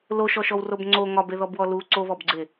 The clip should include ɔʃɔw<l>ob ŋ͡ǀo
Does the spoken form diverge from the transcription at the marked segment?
yes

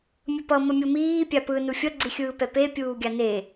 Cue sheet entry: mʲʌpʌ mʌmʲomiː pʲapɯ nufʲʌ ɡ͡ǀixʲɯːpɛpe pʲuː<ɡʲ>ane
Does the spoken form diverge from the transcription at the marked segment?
no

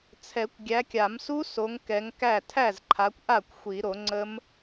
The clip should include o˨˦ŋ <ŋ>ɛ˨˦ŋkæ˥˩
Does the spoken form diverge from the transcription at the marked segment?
yes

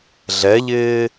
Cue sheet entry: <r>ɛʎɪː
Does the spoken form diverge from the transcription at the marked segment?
yes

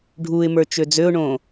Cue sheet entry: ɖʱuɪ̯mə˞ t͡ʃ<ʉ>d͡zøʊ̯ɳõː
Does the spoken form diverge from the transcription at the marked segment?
yes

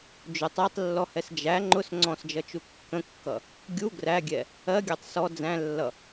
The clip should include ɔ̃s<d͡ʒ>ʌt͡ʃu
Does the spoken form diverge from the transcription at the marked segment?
no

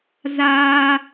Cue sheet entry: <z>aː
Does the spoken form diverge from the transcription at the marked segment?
no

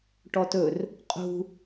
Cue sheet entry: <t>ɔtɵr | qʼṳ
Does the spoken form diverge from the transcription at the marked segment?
yes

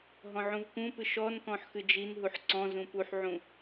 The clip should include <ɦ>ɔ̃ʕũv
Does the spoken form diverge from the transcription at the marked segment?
no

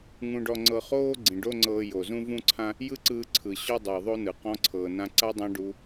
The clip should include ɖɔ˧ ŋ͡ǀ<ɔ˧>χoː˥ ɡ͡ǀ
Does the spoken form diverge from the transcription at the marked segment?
yes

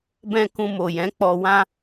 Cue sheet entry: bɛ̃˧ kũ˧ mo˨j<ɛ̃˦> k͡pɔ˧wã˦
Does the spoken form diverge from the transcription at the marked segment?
yes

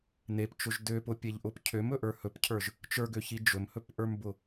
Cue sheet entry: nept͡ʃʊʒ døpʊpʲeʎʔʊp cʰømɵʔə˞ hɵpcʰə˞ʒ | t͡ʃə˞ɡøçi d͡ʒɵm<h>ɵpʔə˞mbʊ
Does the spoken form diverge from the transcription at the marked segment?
no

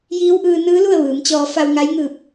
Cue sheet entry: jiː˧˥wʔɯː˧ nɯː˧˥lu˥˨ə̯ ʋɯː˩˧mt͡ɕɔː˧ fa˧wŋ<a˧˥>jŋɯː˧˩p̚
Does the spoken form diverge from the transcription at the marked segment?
no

